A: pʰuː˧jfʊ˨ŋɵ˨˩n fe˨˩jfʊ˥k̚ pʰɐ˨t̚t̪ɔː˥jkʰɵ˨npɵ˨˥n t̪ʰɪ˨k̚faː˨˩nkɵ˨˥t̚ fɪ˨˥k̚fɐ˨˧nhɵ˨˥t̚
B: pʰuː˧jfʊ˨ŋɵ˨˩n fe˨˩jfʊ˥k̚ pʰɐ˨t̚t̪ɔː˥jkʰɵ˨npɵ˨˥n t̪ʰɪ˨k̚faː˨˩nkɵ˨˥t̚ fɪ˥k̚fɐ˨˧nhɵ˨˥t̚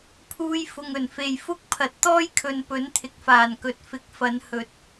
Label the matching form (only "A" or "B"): A